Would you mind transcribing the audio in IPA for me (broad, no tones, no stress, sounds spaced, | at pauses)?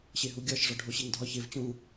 ɕ e ɦ u ɡʲ ɒ ʃ ʐ ɒ ɖʱ o ɕ e ŋ dʱ ɒ ç e v t͡ɕ ũ